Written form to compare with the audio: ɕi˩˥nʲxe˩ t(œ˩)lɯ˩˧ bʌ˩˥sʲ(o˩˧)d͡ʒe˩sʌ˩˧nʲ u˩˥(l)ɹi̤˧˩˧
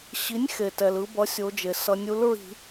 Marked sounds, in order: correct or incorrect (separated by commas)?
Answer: incorrect, correct, correct